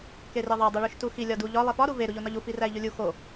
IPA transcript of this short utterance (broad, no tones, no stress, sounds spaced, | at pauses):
k e r e ðˤ æ dˤ u ɭ u ʃ t u x i lʲ ɒ d u ʎ ɒ lˠ i f ɒ ɾ u v e ɾ u ʎ o n ɒ ʎ u f i r æ i̯ ʎ u lʲ u x o